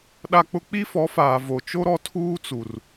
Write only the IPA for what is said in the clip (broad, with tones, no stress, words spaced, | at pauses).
ɗa˦k͡pʊ˦ k͡pi˦fɔ˨˦faː˨ vo˨t͡ʃo˦ ɾɔ˦tʰuː˦t͡su˨r